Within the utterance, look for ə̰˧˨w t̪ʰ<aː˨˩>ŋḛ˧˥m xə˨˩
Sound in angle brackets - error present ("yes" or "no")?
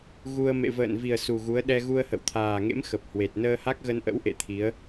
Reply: no